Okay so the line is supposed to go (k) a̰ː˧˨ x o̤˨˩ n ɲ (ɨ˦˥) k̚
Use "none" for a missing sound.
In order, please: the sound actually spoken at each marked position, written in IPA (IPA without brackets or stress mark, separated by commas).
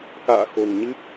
k, ɨ˦˥